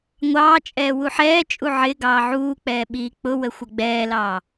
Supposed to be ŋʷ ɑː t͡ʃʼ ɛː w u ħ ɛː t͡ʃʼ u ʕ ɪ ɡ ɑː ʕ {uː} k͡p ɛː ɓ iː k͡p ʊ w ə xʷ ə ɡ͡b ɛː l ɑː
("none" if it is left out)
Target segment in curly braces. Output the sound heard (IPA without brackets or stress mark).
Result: uː